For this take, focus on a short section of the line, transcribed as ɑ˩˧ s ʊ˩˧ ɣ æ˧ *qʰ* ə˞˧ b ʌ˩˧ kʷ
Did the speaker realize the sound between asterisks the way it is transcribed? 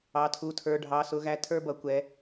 no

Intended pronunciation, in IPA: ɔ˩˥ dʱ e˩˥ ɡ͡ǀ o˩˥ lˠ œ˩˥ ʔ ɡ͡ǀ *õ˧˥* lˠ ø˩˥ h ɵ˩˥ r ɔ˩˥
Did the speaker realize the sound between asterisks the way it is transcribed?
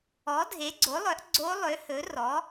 no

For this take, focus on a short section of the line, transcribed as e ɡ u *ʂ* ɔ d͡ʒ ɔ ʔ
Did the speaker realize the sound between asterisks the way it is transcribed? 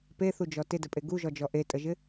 no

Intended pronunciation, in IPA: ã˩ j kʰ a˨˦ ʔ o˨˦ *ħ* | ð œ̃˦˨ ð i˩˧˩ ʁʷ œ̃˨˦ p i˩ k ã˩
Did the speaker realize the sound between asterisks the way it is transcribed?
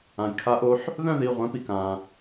yes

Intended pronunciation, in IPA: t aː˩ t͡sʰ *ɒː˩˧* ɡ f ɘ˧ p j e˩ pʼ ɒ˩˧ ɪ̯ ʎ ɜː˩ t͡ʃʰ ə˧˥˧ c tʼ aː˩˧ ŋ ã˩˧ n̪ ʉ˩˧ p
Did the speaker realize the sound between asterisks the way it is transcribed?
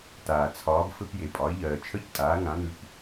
yes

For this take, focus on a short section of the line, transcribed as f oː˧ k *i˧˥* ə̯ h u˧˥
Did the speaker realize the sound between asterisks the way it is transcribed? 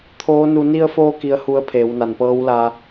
yes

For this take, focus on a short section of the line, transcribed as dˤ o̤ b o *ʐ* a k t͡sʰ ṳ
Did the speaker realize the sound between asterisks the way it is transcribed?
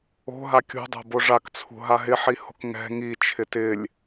yes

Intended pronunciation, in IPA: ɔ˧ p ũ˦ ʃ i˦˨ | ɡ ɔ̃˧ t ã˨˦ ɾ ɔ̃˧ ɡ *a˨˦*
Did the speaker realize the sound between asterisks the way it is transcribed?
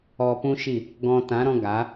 yes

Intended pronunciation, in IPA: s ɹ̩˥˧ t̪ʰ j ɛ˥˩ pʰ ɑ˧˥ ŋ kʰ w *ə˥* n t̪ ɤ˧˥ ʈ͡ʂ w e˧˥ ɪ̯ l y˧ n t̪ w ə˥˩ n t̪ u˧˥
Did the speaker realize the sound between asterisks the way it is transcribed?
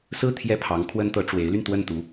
yes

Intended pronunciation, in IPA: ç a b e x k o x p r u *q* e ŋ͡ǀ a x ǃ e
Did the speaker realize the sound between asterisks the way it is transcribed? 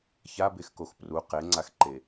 yes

